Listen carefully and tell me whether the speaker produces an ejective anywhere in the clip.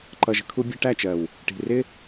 no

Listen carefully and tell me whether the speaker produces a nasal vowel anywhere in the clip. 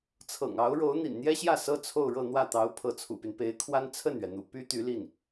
no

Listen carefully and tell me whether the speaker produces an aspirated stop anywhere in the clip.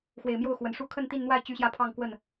yes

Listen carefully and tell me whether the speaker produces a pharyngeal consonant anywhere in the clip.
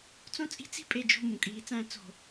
no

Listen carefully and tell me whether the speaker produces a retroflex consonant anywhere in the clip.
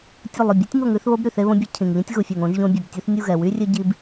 no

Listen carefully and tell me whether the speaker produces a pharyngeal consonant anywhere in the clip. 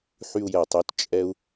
yes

